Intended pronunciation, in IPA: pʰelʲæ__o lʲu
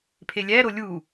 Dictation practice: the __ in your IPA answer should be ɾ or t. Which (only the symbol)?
ɾ